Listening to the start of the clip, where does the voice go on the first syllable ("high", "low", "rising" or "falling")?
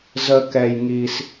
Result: high